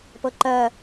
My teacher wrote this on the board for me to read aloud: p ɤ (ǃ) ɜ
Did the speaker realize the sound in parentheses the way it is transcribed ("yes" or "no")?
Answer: yes